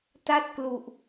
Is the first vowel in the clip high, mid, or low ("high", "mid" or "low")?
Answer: low